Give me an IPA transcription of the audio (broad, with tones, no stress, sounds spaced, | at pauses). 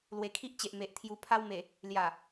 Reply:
l w e˨˩ kʰ i˦ ʔ t͡ɕ e˨ ʔ m e˨ ʔ t̪ʰ j u˨˩ pʰ a˧ w m e˨˩ | l j a˨˩